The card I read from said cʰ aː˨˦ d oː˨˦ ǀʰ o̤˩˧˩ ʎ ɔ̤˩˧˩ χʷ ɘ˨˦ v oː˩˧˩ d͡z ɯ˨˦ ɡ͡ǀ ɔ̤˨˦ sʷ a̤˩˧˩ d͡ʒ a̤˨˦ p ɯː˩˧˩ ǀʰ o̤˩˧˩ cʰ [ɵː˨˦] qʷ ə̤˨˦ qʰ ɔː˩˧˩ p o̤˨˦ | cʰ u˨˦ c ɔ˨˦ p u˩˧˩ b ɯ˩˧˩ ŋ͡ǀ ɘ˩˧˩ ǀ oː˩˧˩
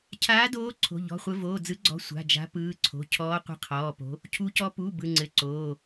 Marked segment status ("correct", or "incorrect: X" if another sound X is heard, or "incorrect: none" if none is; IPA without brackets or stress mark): incorrect: ɔː˨˦